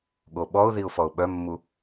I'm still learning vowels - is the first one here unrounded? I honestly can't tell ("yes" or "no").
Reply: no